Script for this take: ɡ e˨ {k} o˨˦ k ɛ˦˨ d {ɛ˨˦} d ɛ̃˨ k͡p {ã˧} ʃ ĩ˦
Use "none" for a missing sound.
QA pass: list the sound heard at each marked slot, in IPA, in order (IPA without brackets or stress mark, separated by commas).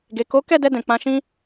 k, ɛ˧, ã˧